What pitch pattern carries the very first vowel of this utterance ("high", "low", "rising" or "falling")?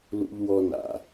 high